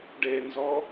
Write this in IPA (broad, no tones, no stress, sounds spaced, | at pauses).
ɖ e n z ɔ